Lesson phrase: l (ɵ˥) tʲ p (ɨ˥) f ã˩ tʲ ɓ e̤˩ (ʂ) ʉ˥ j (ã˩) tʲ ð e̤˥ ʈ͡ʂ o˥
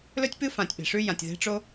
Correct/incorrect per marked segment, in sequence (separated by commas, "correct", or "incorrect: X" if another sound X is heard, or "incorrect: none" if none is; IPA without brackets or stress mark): correct, correct, correct, correct